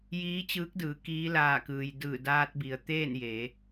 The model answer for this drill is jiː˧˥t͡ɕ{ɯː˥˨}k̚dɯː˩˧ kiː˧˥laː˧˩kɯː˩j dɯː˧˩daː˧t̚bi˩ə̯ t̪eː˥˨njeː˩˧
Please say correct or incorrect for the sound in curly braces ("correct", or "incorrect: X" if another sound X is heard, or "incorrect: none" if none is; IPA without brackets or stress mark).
incorrect: ɯː˧˥